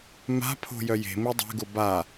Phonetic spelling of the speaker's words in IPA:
m a̤ pʰ o̤ j œ j e̤ m i dˤ e̤ ɡ ʊ b a

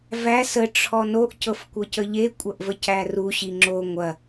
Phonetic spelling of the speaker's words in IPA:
v æ s ə ʈ͡ʂʰ ɔ n o ʔ c ɤ f kʷ ɤ c ə ʎ e kʷʼ ɐ ʔ v ə c æ r u ɕ i ŋ͡ǁ o ŋʷ ɐ

